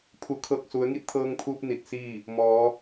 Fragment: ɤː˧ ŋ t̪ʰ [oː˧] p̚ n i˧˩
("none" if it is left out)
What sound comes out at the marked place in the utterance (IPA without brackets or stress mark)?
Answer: uː˧